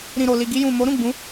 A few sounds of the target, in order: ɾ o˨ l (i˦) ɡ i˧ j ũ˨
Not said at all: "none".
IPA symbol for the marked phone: i˨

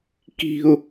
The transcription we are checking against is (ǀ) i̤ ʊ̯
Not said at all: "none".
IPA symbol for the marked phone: k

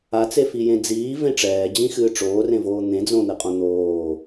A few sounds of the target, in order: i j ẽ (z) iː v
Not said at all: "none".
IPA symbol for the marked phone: d͡z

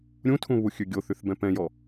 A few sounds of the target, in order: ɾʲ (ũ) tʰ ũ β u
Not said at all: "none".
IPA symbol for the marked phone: ũ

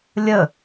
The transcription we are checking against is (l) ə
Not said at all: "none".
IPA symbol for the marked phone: lʲ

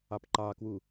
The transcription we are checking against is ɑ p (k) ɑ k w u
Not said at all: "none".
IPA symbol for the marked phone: ǃ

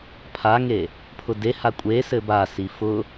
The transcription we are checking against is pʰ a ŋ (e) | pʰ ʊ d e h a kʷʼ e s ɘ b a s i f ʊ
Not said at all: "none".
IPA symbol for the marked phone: e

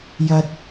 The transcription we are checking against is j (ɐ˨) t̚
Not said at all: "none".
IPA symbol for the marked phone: ɐ˨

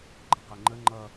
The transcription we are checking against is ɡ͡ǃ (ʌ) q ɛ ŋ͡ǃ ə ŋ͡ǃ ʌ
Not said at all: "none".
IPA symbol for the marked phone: ʌ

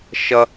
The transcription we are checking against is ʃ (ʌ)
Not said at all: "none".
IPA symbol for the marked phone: ʌ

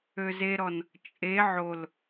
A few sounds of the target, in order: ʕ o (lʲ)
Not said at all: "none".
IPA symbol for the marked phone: l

